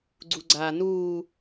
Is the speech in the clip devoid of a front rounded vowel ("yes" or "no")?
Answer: yes